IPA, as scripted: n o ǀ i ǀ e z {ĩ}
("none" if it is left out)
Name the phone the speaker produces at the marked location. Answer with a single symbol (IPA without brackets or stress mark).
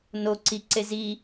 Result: i